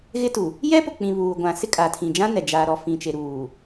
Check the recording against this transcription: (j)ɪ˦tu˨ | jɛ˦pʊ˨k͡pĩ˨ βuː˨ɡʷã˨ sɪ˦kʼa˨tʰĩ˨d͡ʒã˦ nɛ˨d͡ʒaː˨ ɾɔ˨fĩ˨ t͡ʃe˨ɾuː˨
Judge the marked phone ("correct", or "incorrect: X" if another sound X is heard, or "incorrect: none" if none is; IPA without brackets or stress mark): incorrect: ɣ